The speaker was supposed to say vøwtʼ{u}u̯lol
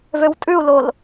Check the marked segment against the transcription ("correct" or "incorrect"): incorrect